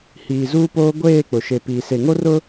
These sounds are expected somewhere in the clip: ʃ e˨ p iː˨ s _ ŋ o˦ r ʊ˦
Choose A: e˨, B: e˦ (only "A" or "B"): A